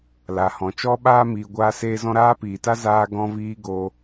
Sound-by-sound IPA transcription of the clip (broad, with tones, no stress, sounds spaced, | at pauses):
l a˨ h ɔ̃˨ t͡ʃ ɔ˦ ɓ aː˦ m iː˧ ɡʷ aː˦ s eː˦ z ɔ̃˦ ɾ aː˦ p iː˨ t a˦ z aː˦ ɡ ɔ̃˦ v iː˦ ɡ o˧